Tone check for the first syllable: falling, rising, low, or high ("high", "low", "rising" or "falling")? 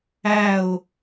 falling